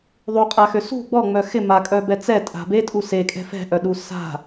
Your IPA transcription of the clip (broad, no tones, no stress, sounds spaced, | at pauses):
ðˤ u qʼ a x ø s ṳ ɡ͡b ɔ ŋ͡m œ x ɪ m a kʼ œ b ɛ t͡s ɛ tʼ a̤ b e tʼ u s e kʼ ɛ̤ f ɛ̤ ʔ œ ɗ u s a̤